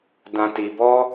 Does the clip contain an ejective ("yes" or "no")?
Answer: no